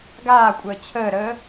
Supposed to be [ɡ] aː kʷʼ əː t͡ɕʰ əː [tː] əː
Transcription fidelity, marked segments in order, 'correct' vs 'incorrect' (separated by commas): correct, incorrect